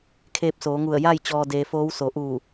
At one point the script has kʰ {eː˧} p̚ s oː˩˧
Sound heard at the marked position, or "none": eː˧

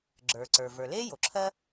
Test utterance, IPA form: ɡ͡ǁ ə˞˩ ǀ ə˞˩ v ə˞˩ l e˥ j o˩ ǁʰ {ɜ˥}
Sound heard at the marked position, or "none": ɜ˥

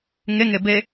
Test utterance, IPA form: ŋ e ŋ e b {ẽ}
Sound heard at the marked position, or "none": e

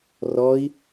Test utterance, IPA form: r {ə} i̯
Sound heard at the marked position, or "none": ɔ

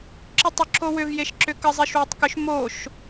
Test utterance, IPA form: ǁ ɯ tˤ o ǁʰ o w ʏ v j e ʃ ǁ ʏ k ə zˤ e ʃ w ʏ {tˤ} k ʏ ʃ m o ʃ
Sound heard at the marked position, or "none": tˤ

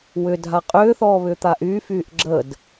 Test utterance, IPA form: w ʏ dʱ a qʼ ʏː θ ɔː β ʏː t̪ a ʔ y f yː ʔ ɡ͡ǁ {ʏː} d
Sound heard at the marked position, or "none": əː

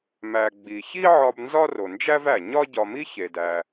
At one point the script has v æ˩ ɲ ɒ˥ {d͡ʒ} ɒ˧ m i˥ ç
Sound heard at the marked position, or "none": ɟ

